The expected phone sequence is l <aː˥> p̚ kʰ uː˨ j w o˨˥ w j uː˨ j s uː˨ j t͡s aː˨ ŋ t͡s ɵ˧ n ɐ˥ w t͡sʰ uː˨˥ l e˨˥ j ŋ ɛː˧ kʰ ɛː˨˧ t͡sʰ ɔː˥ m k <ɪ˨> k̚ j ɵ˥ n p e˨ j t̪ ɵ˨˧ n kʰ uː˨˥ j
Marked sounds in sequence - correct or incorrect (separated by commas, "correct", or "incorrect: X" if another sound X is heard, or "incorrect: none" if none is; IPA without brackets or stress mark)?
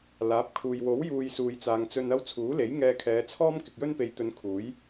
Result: incorrect: aː˨˥, correct